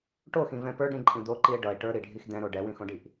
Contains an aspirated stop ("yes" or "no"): no